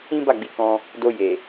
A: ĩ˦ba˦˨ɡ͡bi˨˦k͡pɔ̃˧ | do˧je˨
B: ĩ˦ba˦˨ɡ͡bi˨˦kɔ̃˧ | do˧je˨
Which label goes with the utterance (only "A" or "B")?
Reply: B